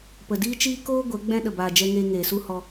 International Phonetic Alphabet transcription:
pə˨diː˦t͡ʃiː˦ koː˦ ɡʷɛ˨˦ɡ͡bɛ̃˦ ɗə˨baː˨d͡ʒɛ˧ŋeː˧ ŋeː˨su˦hɔ˧

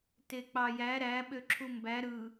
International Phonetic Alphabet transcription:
tek͡pɑjæ ɾæ ɓøǁʰumbæ ɾɯ

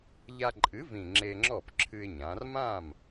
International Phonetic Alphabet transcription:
ʎa˧ǃʼɨ˩˥vĩ˨˩ ŋ͡ǁe˧ŋ͡ǁɔ˥˩p ǁʰɨ˧ɪ̯ɲã˩˧r mã˥˩m

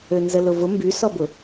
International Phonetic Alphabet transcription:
ønzəlʊvʊ mbysɔbʊ

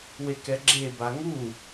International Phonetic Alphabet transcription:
wekɛɡ͡ǁe baŋu

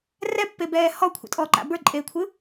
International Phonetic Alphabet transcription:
rɛpːebɛː hɔkʷʰə̰tʼɔːǃa̰ bə˞ǃʼeːkʷʰɯ

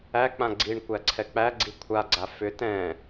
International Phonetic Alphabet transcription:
æk͡pã ɡ͡ǀiɳkʷæ ǀʰɛk͡pæɡ͡ǀi kʷʰaɡ͡ǀa fʏ tɛ̃

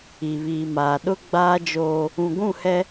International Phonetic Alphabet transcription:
i˨βiː˨maː˨ ɗʊ˦ɡ͡baː˦d͡ʒoː˦ | ũ˨ɡʷũ˦˨hɛ˦

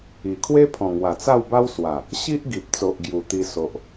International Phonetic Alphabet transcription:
i˨˩kʰwe˦pʰɔ̃˨˩ŋwa˨˩ t͡sa˥˧wba˦w swa˨˩ | ɕi˦ʔɡi˨p̚t͡so˨ʔ ɡju˨˩t̪i˧ so˨ʔ

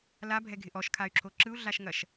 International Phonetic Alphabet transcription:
labʱɛɡʱɪ ʔɔʃkʰay̯ǁʰo ǁɯu̯ɮaʃŋɐʃ

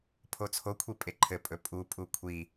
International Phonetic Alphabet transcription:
pʰot͡sʰokʷʰi pʼeǃʰɘpʼɵ pʼupʼu kʷʰi

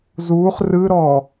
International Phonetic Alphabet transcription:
zuːχ rɯɾɔː

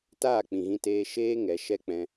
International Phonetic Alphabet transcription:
taː˦˨ k͡pĩ˨ɣĩ˧teː˧ ʃeː˦ ŋɛ˨˦ʃɛ˦ k͡pɛ̃˧

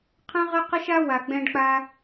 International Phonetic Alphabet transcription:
qʰə̃˦ʁə˦qə˦ʃ a˦ wa˨ɡ͡bɛ̃˧ɖk͡pa˧

